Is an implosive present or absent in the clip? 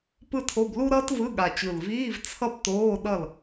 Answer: present